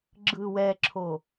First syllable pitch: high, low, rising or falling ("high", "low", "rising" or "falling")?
low